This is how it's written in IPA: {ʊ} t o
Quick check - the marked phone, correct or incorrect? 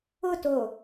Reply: correct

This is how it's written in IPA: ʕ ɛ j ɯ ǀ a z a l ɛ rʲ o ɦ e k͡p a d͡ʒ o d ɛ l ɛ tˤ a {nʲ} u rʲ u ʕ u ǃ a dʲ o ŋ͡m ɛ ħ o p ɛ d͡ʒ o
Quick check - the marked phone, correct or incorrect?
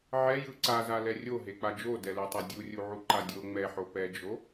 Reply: incorrect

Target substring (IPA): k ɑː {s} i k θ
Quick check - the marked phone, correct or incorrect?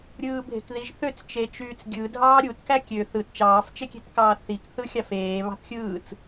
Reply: incorrect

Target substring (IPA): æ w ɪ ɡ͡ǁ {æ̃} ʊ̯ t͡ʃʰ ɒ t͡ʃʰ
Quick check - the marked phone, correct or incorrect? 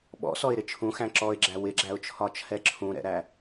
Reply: incorrect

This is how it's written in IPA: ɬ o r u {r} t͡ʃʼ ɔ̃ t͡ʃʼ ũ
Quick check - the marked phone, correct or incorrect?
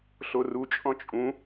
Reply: incorrect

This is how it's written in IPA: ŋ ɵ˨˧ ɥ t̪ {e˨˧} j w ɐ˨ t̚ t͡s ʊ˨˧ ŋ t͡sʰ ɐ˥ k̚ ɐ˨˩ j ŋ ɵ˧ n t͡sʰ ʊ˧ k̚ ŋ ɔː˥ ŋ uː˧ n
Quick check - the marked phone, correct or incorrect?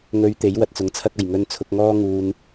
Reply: incorrect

